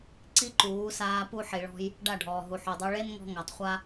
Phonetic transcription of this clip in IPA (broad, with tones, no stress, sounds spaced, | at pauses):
ǀ i˦ ǃ uː˨˦ s aː˧ p u˧ ħ i˨ ɭ ɔ̤˧ j | ɖ a˦˨ ɖʱ ɔː˨ ɦ u˨ ħ u˨ dˤ o˧ ɭ e˦ n ŋ ɔ̤˧ ŋ a˨ tˤ χʷ a˦